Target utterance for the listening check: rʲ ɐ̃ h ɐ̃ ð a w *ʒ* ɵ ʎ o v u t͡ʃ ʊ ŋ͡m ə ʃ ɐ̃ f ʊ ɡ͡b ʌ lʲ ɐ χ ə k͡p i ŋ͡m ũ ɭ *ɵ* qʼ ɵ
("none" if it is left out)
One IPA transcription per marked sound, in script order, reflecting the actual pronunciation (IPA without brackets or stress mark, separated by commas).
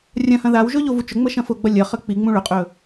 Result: ʒ, ɵ